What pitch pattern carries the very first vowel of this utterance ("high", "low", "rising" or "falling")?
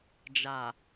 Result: low